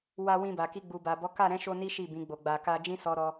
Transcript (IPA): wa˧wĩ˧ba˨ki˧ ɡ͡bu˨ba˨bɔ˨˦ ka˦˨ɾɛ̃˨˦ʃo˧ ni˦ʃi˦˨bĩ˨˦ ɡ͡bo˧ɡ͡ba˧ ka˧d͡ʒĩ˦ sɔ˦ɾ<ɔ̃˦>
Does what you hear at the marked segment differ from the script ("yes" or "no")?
yes